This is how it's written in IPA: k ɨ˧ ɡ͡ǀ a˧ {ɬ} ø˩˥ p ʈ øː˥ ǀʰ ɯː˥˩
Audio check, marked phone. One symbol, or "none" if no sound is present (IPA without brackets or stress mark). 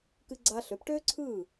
ɬ